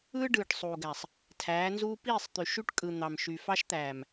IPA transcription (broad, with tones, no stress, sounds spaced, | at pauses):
ɯː˦ ɖ ɯː˨ ʈ sˤ uː˨ ɡ æ˨ sˤ | tʰ æː˨˦ n z uː˦ p iː˦˨ sˤ t̪ y˨ ʃ y˦ ʈ kʼ ɯ˨ n̪ ɑ˨ m ʃ y˨ f ɑ˦ ʃ t̪ æː˨ m